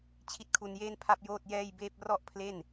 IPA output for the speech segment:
t͡ɕʰ i˦˥ t̚ kʰ u˧ n j eː˥˩ n pʰ a˥˩ p̚ j oː˥˩ t̚ j ɛː˥˩ j b eː˥˩ p̚ r ɔ˥˩ ʔ pʰ l e˥˩ n

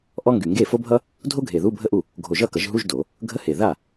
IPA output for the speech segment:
ʔ ɔ˥ ŋ ɡ y˨˩ ŋ ɡ e˥˩ f o˥ bʱ ʌ˥ | dʱ o˥ ɡʱ e˨˩ ð u˧˥˧ bʱ ə˥˩ ʔ u˥˩ | ɡʱ o˨˩ ʒ ʌ˥˩ k ʌ˨˩˦ ʒ ɦ u˧˥˧ ʒ d o˨˩˦ | ɡʱ ə˧˥˧ h e˨˩ ð a˥˩

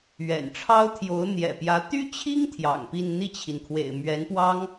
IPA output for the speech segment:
ɥ ɛ̰˨˩ n ʈ͡ʂʰ ɑ˥ ʊ̯ t̪ʰ j o˧˥ ʊ̯ n̪ j ɛ̰˨˩ p j ä˧˥ t̪ y˥ t͡ɕʰ i˥ ŋ t̪ʰ j ɑ̰˨˩ ŋ p i˥˧ n n̪ i˥˩ t͡ɕʰ i˩ n kʰ w ḛ˨˩ ɪ̯ m ɥ ɛ˧˥ n p w ɑ˥ ŋ

